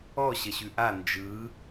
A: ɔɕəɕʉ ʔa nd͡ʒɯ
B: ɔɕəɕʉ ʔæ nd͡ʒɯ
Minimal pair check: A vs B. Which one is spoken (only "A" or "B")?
A